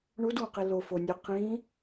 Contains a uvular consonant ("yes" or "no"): yes